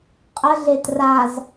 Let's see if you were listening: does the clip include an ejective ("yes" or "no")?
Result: yes